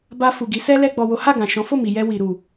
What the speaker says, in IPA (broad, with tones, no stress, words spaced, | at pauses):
ba˧fu˨ɡi˨˦ sɛ˦lɛ˧ ɡ͡bɔ˨wo˨˦ha˦˨ɡã˨ ʃɔ̃˨˦fo˦˨mi˨jɛ˧ wi˨ɾu˨